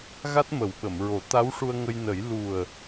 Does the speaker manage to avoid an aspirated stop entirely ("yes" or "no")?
yes